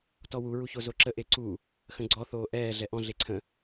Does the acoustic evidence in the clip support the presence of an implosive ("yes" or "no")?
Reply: no